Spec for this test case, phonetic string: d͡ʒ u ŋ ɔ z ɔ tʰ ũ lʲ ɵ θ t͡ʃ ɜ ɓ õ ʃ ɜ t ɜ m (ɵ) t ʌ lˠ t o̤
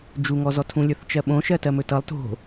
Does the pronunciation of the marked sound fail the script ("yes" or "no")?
no